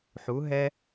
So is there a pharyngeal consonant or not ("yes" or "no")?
yes